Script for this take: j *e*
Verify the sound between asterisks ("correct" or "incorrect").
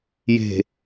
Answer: incorrect